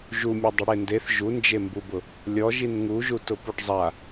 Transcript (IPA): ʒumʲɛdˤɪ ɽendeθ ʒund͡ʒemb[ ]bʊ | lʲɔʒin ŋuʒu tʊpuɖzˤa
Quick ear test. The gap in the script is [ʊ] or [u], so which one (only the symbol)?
u